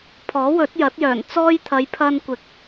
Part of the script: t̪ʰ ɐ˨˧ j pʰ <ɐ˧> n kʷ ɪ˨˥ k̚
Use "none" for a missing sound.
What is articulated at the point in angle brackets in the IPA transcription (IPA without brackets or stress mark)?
ɐ˧